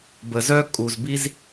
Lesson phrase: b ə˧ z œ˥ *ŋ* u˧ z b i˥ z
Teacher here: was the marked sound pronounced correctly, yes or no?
no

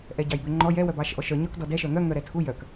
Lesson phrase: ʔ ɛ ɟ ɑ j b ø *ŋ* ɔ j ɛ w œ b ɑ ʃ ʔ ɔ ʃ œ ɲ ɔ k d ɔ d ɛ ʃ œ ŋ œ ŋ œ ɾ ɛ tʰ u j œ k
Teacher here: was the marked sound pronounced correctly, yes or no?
no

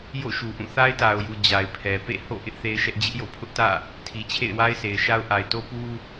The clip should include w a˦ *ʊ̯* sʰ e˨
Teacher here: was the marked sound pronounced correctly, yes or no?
no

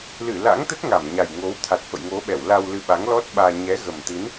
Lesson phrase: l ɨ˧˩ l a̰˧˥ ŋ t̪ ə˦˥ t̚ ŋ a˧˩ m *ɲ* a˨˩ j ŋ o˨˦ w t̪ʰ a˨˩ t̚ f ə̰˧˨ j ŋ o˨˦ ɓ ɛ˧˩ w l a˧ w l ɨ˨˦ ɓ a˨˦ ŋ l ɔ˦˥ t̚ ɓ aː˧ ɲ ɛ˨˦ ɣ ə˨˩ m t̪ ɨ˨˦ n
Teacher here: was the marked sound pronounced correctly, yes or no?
yes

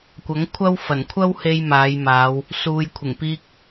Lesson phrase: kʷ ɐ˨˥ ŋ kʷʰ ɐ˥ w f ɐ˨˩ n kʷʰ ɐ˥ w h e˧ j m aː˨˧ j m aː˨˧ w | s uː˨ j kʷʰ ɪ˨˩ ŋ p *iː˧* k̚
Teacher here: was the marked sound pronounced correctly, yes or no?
yes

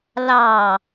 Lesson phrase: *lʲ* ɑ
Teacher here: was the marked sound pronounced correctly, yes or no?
no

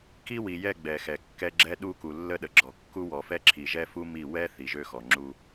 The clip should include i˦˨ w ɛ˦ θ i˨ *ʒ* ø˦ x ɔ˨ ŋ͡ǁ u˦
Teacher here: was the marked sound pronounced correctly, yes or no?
yes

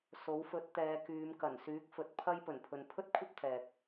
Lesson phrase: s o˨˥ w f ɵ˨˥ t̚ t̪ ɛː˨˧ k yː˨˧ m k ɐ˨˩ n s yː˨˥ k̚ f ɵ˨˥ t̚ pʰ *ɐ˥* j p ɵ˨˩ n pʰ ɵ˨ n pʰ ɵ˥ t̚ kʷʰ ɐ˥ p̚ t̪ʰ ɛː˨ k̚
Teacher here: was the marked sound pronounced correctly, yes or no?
yes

